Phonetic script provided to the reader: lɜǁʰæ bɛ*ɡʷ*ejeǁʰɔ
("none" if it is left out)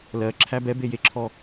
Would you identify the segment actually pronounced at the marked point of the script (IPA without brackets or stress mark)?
b